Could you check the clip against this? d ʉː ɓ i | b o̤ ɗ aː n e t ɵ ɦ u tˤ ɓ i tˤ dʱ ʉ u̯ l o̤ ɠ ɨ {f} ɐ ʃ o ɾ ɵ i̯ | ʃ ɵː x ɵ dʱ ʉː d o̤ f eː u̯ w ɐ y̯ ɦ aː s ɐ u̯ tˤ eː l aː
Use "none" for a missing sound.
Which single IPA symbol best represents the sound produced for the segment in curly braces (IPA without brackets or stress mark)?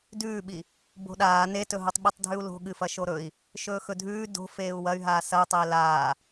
f